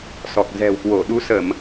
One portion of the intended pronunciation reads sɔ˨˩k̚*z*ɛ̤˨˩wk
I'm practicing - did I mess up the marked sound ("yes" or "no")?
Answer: no